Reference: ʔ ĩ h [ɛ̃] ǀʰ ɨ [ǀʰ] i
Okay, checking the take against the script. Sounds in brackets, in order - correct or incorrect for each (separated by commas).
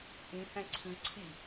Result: correct, correct